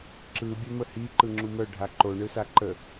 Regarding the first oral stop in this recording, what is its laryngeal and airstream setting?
click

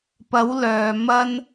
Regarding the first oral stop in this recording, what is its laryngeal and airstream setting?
plain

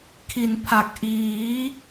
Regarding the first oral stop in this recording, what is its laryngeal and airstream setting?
aspirated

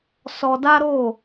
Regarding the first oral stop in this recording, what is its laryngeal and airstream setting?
plain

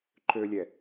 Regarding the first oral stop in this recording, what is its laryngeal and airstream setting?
click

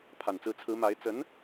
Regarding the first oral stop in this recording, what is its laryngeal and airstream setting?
aspirated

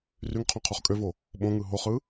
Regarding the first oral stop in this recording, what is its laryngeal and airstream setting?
aspirated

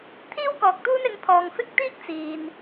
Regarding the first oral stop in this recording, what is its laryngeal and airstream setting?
aspirated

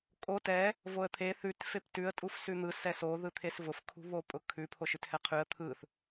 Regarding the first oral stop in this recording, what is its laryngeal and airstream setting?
ejective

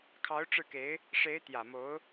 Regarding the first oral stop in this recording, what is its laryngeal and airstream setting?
aspirated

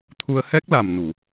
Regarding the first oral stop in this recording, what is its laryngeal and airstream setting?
aspirated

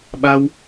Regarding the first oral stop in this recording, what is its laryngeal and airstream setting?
implosive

